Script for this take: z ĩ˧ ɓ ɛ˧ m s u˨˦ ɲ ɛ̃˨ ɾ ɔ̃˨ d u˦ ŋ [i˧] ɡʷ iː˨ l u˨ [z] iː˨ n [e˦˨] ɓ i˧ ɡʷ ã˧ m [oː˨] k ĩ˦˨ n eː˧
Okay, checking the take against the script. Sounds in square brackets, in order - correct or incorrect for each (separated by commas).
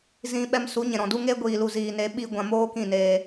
incorrect, correct, incorrect, incorrect